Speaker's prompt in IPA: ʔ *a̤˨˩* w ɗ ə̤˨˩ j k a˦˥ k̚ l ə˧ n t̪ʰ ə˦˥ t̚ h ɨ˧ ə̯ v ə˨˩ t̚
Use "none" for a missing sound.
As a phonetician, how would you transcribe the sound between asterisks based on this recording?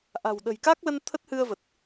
a̤˨˩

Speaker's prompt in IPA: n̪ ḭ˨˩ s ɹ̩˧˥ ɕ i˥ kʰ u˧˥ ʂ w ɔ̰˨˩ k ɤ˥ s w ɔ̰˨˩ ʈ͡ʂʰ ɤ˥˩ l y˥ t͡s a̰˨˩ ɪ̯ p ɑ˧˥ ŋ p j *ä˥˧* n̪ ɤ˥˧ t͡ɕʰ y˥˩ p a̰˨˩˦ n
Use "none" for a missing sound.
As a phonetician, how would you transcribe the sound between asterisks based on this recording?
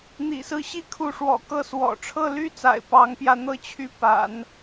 ä˥˧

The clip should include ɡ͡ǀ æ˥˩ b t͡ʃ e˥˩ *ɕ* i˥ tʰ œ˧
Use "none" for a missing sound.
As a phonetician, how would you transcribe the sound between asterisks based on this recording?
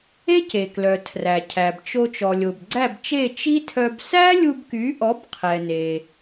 t͡ʃ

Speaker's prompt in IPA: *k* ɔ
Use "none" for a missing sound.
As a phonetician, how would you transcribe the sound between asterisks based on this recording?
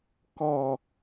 k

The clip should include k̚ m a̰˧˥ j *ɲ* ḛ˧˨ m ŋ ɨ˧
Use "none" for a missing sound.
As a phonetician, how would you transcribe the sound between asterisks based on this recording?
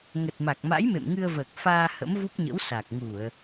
m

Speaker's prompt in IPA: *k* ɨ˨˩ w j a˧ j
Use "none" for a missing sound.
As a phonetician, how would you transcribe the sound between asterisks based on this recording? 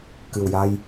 k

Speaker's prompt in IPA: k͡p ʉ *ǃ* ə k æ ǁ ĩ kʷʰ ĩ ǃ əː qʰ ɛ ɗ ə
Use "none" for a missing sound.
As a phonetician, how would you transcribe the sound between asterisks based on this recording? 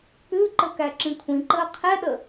ǃ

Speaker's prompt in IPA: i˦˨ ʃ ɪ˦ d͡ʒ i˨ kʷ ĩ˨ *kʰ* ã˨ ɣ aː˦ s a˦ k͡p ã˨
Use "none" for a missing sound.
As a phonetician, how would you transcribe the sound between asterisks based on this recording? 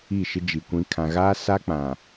kʰ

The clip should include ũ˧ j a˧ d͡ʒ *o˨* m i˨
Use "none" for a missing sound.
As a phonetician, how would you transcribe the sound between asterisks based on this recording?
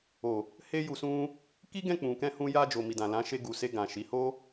o˨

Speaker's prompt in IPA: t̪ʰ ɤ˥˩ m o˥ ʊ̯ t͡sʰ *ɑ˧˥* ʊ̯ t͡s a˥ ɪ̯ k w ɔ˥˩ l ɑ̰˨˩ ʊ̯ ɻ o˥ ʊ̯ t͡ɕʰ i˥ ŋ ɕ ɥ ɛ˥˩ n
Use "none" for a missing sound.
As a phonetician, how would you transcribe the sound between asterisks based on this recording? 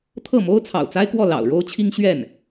ɑ̰˨˩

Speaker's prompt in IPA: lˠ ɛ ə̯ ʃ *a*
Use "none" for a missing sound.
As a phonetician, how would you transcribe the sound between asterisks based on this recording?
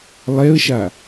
a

